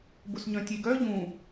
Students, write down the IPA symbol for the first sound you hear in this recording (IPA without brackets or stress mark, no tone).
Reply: b